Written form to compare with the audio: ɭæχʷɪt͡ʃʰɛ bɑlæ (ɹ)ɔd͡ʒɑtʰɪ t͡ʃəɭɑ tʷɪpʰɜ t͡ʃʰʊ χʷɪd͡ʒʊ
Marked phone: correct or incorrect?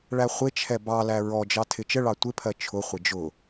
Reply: correct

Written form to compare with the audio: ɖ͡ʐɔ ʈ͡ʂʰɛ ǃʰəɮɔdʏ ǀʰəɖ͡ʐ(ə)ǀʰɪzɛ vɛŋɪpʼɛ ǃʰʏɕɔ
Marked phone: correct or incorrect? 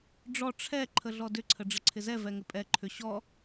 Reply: correct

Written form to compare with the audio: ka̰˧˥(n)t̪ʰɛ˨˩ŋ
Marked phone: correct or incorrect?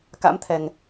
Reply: incorrect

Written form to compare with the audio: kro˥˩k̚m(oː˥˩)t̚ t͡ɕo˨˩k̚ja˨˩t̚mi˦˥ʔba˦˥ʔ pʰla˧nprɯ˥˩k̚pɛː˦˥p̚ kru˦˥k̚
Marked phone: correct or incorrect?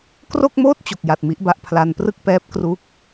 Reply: correct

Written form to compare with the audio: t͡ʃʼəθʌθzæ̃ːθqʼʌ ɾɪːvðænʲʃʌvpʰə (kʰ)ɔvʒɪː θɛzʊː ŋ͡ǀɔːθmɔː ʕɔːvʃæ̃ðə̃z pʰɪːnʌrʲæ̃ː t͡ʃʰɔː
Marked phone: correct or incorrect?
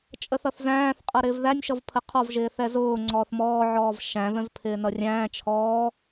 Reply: incorrect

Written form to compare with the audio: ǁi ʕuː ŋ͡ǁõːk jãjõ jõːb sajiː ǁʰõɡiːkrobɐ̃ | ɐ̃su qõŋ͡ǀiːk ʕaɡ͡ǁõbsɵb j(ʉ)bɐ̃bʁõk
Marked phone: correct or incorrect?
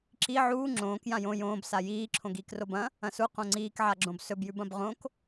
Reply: correct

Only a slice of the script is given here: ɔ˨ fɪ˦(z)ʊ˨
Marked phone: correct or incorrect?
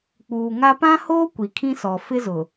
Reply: correct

